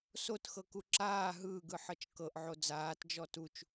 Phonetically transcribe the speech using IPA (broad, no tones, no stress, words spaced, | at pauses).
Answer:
sotxɤku ǁaː ɦɯːɡɯħɤt͡ʃ kɤʔʕo d͡zaːtd͡ʒɔ tut͡ʃ